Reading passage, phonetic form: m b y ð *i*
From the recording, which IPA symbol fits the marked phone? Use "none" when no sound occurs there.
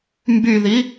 i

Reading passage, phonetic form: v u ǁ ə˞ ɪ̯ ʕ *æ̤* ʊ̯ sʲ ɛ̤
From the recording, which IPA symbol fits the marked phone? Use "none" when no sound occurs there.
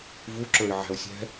æ̤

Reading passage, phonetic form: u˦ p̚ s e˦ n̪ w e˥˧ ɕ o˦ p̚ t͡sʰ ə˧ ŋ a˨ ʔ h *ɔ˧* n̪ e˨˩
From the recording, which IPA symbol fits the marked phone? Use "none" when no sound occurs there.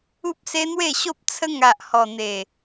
ɔ˨˩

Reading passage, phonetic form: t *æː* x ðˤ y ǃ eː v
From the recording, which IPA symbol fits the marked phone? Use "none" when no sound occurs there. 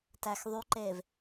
æː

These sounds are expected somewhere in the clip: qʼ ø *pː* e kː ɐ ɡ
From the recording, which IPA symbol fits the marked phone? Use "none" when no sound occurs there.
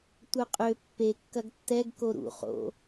pː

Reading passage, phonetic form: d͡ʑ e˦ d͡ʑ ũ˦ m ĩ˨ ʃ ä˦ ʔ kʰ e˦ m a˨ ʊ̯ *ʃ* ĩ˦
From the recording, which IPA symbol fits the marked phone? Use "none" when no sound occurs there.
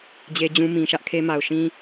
ʃ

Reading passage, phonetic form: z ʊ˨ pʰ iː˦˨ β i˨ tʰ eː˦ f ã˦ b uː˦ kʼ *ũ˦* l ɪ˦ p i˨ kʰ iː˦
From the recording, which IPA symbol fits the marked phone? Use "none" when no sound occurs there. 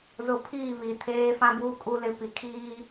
u˦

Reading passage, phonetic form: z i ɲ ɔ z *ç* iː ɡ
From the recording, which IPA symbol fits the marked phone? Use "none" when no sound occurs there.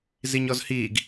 h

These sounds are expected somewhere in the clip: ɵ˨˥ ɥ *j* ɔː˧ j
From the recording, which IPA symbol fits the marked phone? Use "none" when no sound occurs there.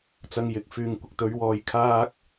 w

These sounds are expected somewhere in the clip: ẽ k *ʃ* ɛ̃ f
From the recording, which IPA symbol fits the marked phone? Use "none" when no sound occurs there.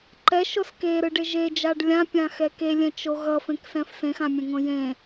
s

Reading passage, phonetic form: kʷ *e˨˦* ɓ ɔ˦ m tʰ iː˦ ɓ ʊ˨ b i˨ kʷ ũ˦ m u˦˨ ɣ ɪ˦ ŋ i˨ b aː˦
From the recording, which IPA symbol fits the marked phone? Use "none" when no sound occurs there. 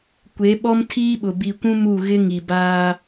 e˨˦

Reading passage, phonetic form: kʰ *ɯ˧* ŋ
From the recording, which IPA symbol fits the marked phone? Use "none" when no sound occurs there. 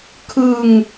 ɯ˧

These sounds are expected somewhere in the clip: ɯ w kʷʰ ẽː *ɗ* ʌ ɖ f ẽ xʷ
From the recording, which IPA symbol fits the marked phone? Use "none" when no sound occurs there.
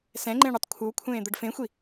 d̪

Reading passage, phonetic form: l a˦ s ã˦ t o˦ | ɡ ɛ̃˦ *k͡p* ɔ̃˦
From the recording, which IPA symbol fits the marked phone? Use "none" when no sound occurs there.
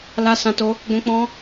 k͡p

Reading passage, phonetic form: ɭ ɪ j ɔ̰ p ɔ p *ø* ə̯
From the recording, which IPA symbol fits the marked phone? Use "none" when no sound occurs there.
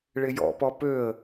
ø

